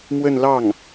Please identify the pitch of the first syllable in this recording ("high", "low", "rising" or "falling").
falling